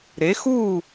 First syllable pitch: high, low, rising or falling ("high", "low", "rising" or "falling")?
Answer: rising